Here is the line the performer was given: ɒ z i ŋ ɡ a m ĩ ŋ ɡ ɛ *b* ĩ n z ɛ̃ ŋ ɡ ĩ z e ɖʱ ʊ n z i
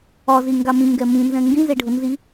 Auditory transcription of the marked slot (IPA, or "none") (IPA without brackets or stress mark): m